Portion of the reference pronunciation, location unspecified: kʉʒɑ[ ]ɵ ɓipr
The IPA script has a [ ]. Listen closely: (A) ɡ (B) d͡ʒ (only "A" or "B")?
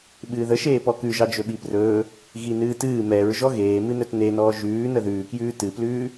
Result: B